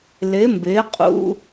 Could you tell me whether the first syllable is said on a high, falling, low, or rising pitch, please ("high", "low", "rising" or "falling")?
rising